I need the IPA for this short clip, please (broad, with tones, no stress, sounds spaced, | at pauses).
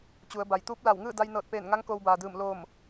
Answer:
t͡ɕ u˩˧ ə̯ b a˩ j t̪ uː˧˥ p̚ l a˧˩ w ŋ ɯː˥˨ d a˧ j n ɤː˧˩ t̚ p eː˧˩ n ŋ a˧˥ ŋ k oː˧ w b aː˩ d ɯː˧˩ m l oː˧˩ m